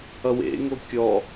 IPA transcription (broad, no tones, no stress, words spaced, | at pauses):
ʌwḛŋo kʲɔ